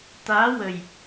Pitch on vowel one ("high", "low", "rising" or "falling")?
rising